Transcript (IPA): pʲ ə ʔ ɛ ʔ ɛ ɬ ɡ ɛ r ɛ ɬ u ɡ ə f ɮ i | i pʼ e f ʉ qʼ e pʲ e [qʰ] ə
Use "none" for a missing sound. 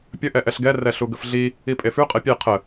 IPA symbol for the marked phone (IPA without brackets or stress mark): qʰ